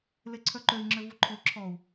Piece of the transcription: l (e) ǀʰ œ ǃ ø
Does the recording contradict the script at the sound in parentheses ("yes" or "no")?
no